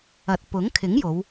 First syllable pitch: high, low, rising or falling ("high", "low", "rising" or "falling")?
low